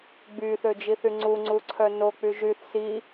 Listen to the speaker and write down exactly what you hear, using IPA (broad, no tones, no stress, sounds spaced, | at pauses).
ɡ͡b y θ ø d͡ʒ i θ y ŋ͡ǀ u ŋ͡ǀ u ǀʰ œ n o k͡p y ʒ y θ s i